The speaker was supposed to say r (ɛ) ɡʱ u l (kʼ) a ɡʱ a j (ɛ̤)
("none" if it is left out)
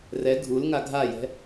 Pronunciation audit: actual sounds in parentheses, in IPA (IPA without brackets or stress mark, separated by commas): ɛ, ŋ, ɛ̤